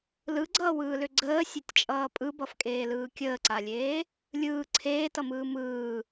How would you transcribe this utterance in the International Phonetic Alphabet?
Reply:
l ɯ ɡ͡ǀ ʌː w ɯː l ʏ ɡ͡ǀ əː sʲ e tʲ t͡ʃʼ ʌː pʼ ɯ b ʌ f kʼ eː l ɯː kʲ əː ǀ a lʲ eː | lʲ ɯː ǀʰ eː t ʌ m ɯː m ɯː

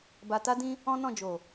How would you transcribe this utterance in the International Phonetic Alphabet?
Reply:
b a˧ t a˦ d ĩ˦ | ɔ̃˦ n ɔ̃˦˨ d͡ʒ o˨

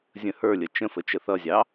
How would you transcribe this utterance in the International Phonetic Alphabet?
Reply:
zʲ ə̃ h ə˞ lʲ ə t͡ʃ ə̃ f ə t͡ʃ ə θ ʌ zʲ ɑ

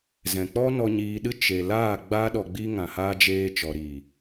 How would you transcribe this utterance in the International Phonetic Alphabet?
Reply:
z ɛ̃˨ k͡p ɔ˦ n ɔ˧ ɲ iː˧ ɗ ɨ˦ t͡ʃ e˧ l aː˦˨ ɡ͡b aː˦ ɗ ɔ˧ ɡ͡b i˦ ŋ ã˧ h aː˦ d͡ʒ eː˦ t͡ʃ ɔ˨ ɾ iː˨

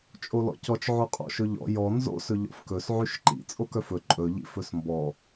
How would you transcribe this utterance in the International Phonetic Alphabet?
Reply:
t͡ʃʼ o l ɔ̰ c ɔ t͡ʃ ʕ o qʼ ɔ̰ ʃ ɵ ʎ ɔ̰ j ɔ n z o̰ s ɵ ʎ ɔ̰ f k ɵ s ʕ y ʃ ǃ ḭ t͡sʼ o k œ f ɵ ǃʼ ɵ ʎ ḭ f ɵ s m b ɔ

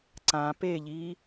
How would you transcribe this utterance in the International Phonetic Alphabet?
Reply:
ǀ ã p e ʎ iː

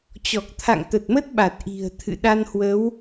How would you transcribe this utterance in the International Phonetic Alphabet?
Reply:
t͡ɕ ɔ˨˩ k̚ t̪ʰ a̰˧˨ ŋ t̪ ə˨˩ t̚ m ə˦˥ t̚ ɓ a˨˩ t̚ ʔ i̤˨˩ ə̯ t̪ʰ ɨ̰˧˨ ɗ a˧ n h w ə˨˦ w

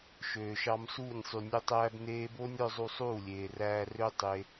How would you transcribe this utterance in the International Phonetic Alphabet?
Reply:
ʃ øː˨ ʃ ɑ˧ m s uː˦˨ nʲ sˤ y˨ nʲ o˧ tˤ æː˧ b n eː˧ b o˦ nʲ ɾ œ˦ zˤ u˧ sˤ uː˦˨ lʲ eː˨ r æː˧ r ø˦ tˤ e˧

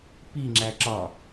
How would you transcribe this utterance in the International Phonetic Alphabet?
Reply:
p i ŋ͡ǁ æ ǁ ɒ

